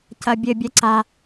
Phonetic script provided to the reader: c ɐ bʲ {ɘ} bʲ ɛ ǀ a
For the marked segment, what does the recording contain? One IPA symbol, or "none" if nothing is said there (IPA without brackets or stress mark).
ɘ